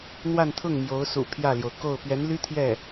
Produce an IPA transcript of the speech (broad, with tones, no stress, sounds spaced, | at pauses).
n̪ w a˥˧ n t̪ʰ ʊ˥˩ ŋ m j o˧˥ ʊ̯ s ṵ˨˩ pʰ j ä˥˩ l j o˩ ʊ̯ k o˥˩ ʊ̯ p ɥ ɛ˧˥ n l y˥ t̪ʰ j ɛ˥˩